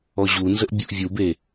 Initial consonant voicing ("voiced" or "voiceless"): voiced